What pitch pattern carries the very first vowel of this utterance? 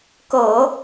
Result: low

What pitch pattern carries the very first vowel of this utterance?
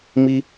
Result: high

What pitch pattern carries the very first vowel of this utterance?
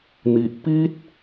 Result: low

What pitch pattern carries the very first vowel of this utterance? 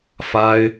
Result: high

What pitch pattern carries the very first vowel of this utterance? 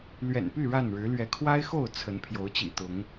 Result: low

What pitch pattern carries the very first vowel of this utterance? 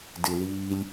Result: low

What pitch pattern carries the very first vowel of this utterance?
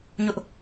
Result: high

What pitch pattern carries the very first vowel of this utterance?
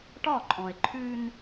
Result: falling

